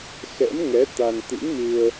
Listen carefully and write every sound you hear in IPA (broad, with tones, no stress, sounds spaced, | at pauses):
x ɛ̰˧˥ m ŋ ɛ˨˦ t̪ a˧ n t̪ ḭ˧˥ n m ɨ˧ ə̯